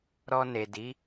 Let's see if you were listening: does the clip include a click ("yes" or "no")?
no